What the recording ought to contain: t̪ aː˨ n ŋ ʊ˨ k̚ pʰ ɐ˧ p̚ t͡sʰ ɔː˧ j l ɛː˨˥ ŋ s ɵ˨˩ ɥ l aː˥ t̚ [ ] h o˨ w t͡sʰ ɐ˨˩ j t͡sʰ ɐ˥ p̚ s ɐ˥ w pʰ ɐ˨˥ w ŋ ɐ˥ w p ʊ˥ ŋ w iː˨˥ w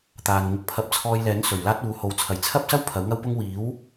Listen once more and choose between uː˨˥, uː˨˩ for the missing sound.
uː˨˥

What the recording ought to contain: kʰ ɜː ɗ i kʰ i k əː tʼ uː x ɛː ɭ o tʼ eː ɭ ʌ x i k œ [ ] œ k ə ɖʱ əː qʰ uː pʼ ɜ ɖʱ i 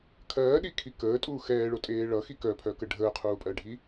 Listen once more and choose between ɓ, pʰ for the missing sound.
pʰ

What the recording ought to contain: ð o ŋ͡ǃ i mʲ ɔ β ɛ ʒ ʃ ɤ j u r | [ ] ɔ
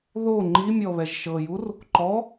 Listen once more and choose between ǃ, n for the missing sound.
ǃ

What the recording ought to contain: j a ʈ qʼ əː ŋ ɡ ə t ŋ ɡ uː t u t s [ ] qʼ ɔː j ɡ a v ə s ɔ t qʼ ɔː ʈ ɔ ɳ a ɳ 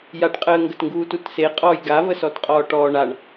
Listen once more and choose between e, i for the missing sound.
e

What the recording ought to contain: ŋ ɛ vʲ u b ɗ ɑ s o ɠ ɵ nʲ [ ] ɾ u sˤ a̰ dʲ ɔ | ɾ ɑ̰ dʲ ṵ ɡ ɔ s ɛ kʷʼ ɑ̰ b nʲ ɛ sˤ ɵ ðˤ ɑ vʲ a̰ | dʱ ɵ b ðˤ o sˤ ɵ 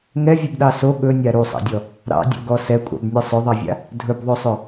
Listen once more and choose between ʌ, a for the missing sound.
a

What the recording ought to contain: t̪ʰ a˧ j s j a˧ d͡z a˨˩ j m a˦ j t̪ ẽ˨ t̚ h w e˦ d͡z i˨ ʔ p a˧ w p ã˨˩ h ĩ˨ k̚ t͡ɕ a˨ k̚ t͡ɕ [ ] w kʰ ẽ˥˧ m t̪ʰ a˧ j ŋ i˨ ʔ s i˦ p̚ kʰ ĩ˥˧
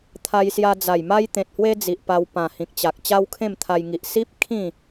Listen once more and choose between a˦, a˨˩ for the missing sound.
a˦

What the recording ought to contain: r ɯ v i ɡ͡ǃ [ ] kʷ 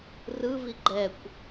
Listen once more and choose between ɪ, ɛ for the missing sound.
ɛ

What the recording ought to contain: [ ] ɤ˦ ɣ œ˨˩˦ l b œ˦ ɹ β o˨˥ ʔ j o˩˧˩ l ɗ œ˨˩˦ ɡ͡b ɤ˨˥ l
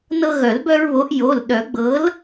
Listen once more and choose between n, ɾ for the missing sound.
n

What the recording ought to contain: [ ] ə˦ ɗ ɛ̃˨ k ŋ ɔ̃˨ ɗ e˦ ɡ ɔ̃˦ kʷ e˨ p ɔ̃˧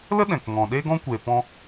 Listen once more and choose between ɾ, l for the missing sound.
l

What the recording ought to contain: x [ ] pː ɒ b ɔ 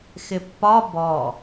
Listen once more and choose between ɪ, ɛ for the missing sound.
ɪ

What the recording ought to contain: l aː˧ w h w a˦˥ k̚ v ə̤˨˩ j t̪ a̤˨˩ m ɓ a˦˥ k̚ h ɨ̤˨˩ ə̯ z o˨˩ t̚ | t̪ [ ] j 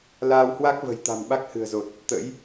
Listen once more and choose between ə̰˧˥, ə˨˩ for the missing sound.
ə̰˧˥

